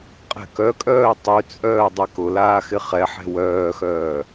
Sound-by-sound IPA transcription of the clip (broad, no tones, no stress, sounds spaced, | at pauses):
qʼ ɛ̤ k œ kʼ œː tˤ y t͡sʼ œː dˤ ɛ k ʊ l aː x ɪ χ ɛ ħ ɛ̤ w œː x œː